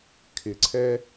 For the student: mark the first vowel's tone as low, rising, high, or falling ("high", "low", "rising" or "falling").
low